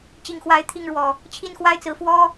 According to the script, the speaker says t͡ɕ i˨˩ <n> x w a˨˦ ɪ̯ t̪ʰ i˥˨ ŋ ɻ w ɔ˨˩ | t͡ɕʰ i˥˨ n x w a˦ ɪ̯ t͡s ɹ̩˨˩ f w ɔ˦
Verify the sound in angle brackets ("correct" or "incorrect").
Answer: incorrect